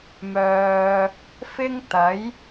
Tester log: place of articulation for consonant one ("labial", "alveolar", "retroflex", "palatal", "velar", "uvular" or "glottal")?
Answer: labial